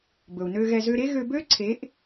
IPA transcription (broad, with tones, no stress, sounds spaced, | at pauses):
b ɵ˨ u̯ n ø˧ ɣ ɛ˧ z ø˧ ɾ e˦ ɣ ø˧ b ø˦ ǀʰ e˨˦ ʔ